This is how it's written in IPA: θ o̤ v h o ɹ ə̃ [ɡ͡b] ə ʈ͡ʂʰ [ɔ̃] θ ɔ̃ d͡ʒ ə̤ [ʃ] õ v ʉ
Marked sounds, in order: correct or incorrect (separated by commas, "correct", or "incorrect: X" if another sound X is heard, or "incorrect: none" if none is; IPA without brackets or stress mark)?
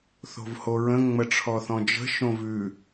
incorrect: ŋ͡m, incorrect: ɔ, correct